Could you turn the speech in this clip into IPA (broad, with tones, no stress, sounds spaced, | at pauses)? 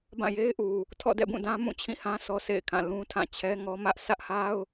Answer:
b ã˦˨ j e˦ ɪ̯ ʔ u˨ | tʰ ɔ̰˦˨ d ɛ̰˦˨ b ũ˦˨ d ã˦ m ũ˦˨ t͡ɕʰ ĩ˦˨ h ã˦ sʰ ɔ˦ s ḛ˦˨ ɪ̯ kʰ ã˦˨ l ũ˦ tʰ ã˦˨ t͡ɕʰ ɛ˦ ŋ ɔ˦ m ä˦ ʔ sʰ ä˦ ʔ h a˦ ʊ̯